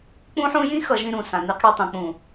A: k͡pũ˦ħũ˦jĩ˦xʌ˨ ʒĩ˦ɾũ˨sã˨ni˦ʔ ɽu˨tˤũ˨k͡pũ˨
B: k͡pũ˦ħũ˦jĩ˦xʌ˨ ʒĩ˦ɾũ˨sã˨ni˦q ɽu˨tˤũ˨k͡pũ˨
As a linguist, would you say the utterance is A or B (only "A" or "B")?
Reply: B